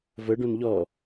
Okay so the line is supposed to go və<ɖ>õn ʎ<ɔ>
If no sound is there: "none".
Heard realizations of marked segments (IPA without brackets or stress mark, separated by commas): ɖ, ɔ